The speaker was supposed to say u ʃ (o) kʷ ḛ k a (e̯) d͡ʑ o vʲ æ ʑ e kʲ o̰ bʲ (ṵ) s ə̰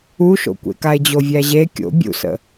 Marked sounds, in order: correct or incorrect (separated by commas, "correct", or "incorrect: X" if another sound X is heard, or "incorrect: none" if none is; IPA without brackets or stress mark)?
incorrect: o̰, correct, correct